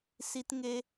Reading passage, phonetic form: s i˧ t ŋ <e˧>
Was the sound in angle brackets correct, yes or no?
yes